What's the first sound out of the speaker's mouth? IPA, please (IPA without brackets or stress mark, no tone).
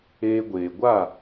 eː